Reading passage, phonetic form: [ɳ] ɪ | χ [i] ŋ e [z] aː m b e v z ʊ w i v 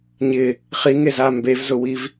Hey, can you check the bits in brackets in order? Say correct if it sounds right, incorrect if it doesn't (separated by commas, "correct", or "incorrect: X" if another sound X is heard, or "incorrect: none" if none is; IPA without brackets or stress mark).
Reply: incorrect: ɲ, correct, correct